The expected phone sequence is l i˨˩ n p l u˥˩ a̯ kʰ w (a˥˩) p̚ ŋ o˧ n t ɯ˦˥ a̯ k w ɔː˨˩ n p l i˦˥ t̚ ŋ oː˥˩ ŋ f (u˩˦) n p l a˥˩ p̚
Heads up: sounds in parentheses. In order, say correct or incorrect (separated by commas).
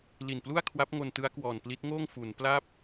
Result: incorrect, correct